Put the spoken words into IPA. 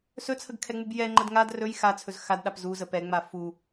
sɵt͡sʰəɡkʰɛŋ͡mub jɛŋ͡ǃəd ŋad rɵj xat͡sʰɵz xadɗap zuzə pɛŋ͡ma fu

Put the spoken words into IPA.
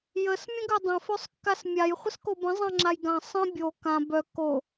jəs mʲə̃ɡødˤə̃ føsˤkːasmʲaj χʷəskobə̃ zˤãŋ͡ǁajɡã sˤə̃ bʲo kã bœ ko

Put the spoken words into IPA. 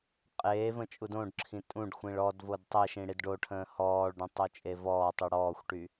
qʼeːvə̃ t͡ʃʼudõɖǁʰĩ tʼũɖxʷĩɭ ɔdvod tˤeʃĩ ɽidɖoʈʰə̃ː hɔːɭɖõ tˤot͡ʃʼevɔːtˤu ɽɔːxʷʈy

